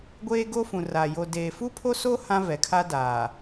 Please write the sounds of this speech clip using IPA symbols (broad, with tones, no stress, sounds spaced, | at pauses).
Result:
ɡʷ eː˦ ɡ o˦ f ũ˨ r a˨ j o˨ d eː˨ f u˦ pʰ o˦ s o˦ h ã˦ v ɛ˨ kʰ a˦ d aː˨